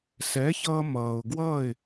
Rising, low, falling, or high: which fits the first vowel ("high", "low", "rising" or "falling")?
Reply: rising